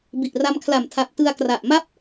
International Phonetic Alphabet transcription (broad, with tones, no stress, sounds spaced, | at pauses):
b i˨˩ ʔ r a˧ m kʰ l a˨˩ m tʰ a˨˩ p̚ t ɯ˧ a̯ k r a˨˩ ʔ m a˥˩ p̚